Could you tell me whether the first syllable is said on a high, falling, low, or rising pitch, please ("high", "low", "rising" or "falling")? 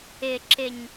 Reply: high